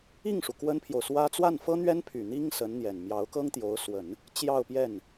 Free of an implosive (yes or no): yes